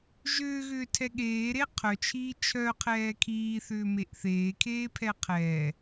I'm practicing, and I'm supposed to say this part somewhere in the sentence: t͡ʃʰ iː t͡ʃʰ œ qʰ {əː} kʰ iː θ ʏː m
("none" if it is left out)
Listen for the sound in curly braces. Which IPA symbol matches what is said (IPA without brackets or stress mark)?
ɛː